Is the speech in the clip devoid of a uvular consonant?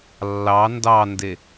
yes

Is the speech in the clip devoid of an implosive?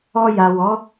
yes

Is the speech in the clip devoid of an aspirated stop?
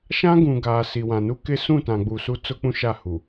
yes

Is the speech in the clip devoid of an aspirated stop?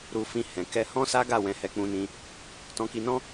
yes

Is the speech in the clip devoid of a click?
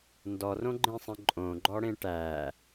no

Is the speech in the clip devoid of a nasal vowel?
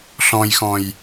no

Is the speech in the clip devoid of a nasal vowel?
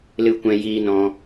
no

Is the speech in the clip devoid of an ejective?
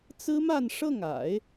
yes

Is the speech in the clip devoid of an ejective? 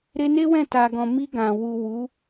yes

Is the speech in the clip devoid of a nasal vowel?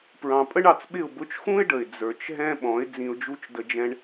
no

